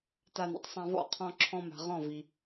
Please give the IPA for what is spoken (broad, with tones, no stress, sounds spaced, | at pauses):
t a˧ n ḭ˨ tˤ sˤ ã˧ v ɔ̰˦˨ qʰ ɔ̃˧ ǁʰ ɔ̃˧ m a̤˨ ʁ ɔ̃˦˨ v i˨